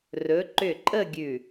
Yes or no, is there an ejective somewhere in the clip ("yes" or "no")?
yes